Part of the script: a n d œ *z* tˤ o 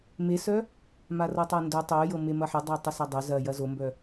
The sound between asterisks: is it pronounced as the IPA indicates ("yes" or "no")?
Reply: no